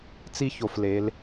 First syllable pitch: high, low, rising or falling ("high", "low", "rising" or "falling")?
high